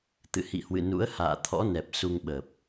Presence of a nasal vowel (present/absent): absent